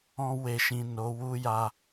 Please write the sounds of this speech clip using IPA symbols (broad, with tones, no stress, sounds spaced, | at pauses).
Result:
ɔ̃˧ w e˨ ʃ ĩ˨ n o˨˦ w u˦ j a˧